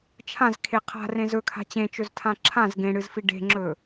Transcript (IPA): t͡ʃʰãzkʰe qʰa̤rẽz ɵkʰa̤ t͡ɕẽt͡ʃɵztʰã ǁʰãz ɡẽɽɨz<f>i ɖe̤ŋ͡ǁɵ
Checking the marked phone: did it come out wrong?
no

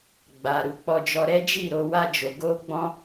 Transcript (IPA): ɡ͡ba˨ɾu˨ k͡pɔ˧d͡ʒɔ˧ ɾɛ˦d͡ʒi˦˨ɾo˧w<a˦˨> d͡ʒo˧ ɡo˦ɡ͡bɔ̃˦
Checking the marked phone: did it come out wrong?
yes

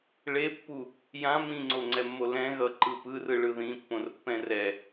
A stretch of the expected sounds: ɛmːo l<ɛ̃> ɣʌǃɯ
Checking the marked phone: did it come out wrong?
no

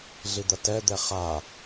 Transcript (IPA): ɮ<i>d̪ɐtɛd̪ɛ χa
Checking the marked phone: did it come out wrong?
no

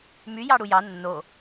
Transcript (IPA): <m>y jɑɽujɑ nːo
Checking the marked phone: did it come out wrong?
no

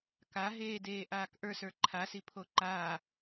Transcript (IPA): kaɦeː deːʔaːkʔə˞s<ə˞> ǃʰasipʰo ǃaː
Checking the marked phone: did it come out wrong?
no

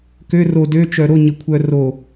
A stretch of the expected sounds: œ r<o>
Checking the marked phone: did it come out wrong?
no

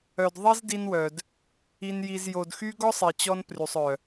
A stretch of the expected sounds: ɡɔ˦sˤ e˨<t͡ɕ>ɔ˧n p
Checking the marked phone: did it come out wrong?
no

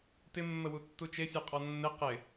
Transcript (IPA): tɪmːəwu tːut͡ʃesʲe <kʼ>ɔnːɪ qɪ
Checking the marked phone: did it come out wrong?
yes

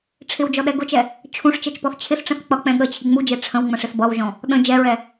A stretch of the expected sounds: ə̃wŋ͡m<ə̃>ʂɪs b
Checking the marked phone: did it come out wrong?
no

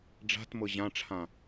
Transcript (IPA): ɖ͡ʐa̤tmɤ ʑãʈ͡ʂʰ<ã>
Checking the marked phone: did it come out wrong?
no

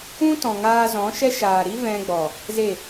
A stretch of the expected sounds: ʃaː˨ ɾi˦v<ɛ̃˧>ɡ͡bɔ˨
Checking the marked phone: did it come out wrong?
no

